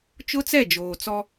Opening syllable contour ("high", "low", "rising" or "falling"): high